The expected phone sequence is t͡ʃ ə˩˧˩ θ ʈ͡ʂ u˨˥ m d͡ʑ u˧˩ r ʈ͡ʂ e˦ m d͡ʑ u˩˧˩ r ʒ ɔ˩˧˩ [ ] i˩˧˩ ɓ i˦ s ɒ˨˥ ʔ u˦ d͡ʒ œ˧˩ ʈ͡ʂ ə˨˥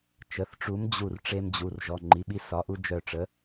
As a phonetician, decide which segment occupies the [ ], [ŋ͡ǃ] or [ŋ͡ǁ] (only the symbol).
ŋ͡ǃ